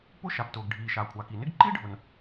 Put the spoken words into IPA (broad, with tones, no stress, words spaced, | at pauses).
pʊ˥ ʃa˩ptʊː˩ɡɖʱiː˩ ʃa˩kʷʰa˩ki˩nɪ˥ɡ ǃi˥ɖʱʊ˩n